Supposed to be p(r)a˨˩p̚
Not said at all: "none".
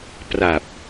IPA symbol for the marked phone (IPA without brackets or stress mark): r